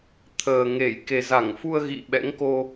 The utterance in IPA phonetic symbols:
t̪ʰ əː˨˩ ŋ e˧˩ j k e˨˩ z a˧˩ ŋ f u˧ ə̯ ɣ ḭ˧˨ ɓ ɛ̰˧˥ ŋ k o˧

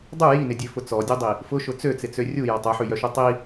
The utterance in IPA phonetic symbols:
dˤ u j i n ɪ dʲ ø f ʊ t͡s ɔ dʲ o dˤ i | f ʊ ʃ ʊ t͡s ø t͡s ɪ t͡s ø rʲ u j ɔ tˤ œ ħ y j œ ʃ u tˤ i

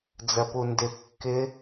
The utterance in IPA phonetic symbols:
d͡z ɜ p u n d ɪ kː ɪ

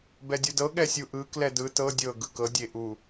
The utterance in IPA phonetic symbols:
b ɛ dʲ u d ɤ ɠ ɛ sʲ u ʔ ɯ k l ɛ d ɯ t ɤ dʲ ɤ ɡ ɯ k ɤ dʲ e ʔ u

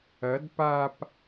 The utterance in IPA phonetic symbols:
ɐ d p a p

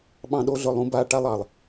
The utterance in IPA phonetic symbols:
ɓ ɑ̃˦ ɗ o˦ ɮ ɵ˦˨ lˠ ũ˦ b a˦˨ ʈ a˦ lˠ ɑ˨ lˠ

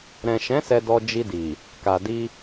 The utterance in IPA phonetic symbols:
ɾ ɛ̃˨ ʃ ɛ̃˨˦ s ɛ˧ d ɔ˧ d͡ʒ i˧ d i˨ | k a˨ d i˧

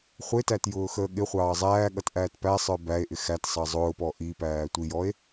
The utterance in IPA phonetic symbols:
χʷ ɪ t æ t j ʊː x əː ɠ ɪ χʷ ɑː zˤ æː ɠ ʌ t ʔ æː t p æ sˤ ə˞ b æ e̯ ʔ ɪ x æ t sˤ ɑ zˤ ʊː p ɔ ʔ i p æː tʷ i j ɔ e̯

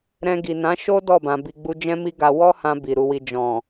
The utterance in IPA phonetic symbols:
ɾ ɛ̃˧ ɡ i˨ n ã˨˦ ʃ o˦ d ɔ˦˨ b ã˨ b i˨ ɡ͡b u˧ d͡ʒ ɛ̃˦ m i˦ ɡ a˧ w ɔ˦ h ã˧ b i˨ ɾ u˧ w i˧ d͡ʒ ɔ̃˨

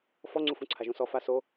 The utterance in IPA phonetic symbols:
f ɔ ŋ͡ǀ u f ũ ǀʰ a ʒ ũ s ɔ f a s o

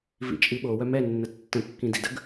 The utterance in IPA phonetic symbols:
v ḭ t͡ʃʼ i ɓ o w œ m ɛ nː ə tː ə̃ kː ĩ d ḭ d ə ɡ

